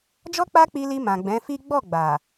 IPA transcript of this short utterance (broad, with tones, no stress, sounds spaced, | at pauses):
d͡ʒ ɔ˦ k͡p a˦ k͡p i˧ l i˧ m ã˨ ɡ͡b ɛ̃˨˦ f i˦ ɡ͡b ɔ˦˨ ɡ͡b a˨